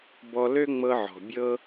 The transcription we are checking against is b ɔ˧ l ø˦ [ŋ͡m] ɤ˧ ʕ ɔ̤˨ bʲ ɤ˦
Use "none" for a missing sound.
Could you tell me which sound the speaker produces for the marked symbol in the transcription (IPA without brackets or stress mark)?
ŋ͡m